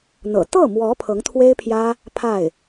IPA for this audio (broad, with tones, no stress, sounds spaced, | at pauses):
n̪ ɤ̰˨˩ t̪ ɤ˥˩ m w ɔ˧˥ pʰ ɤ˧˥ ŋ t̪ʰ w e˥ ɪ̯ pʰ j ä˥ | pʰ a˥˩ ɪ̯